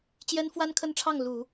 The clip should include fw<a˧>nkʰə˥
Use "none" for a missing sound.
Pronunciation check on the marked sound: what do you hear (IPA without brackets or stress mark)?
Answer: a˥